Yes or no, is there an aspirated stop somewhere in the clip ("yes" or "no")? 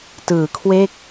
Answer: yes